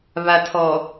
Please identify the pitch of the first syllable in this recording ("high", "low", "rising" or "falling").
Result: low